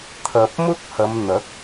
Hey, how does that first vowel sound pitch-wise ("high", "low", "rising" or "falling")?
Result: low